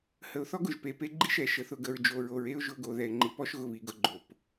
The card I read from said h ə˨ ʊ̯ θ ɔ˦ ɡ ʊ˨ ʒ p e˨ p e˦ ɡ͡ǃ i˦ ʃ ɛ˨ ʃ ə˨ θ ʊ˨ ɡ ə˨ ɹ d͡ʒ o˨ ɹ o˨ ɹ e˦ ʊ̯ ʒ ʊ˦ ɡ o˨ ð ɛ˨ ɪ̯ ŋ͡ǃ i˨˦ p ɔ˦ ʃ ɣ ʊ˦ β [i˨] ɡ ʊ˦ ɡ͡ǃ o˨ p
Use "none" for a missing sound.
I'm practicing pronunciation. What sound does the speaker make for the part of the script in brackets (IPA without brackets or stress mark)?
i˨